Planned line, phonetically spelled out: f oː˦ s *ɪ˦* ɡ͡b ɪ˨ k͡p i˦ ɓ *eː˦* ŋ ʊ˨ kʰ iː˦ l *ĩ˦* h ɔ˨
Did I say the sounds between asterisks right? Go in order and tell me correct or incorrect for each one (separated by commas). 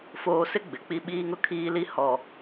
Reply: correct, incorrect, incorrect